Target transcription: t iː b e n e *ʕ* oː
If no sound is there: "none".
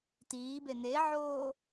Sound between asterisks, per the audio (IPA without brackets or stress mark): ʕ